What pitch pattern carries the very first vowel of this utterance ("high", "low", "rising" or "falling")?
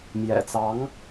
low